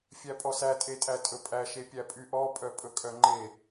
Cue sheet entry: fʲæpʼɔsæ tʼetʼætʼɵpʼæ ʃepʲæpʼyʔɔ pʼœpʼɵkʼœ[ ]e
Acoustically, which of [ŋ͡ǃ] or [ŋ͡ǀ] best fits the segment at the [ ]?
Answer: ŋ͡ǃ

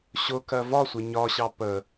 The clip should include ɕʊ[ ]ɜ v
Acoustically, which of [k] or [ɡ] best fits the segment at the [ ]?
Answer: k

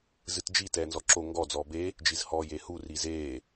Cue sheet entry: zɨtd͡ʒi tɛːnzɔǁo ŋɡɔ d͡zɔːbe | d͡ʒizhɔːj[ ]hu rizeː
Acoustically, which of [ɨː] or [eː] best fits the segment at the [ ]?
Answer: eː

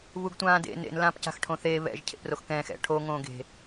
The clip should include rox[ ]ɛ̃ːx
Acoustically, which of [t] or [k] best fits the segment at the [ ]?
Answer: k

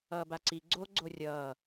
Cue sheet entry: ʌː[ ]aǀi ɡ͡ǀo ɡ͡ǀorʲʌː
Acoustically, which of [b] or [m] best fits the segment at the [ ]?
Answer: b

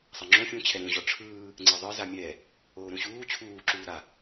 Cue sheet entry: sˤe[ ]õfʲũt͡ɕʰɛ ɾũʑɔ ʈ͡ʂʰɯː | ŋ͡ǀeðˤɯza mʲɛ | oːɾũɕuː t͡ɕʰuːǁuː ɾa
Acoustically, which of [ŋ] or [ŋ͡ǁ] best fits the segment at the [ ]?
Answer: ŋ͡ǁ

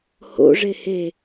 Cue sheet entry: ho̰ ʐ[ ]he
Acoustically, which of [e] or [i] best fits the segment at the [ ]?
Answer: e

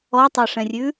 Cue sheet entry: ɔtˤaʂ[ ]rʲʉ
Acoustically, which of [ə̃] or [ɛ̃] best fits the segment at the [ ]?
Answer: ɛ̃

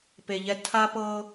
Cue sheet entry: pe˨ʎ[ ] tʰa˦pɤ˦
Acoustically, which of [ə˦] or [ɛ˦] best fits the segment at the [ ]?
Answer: ɛ˦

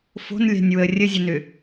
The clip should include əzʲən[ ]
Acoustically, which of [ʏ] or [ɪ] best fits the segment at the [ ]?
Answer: ʏ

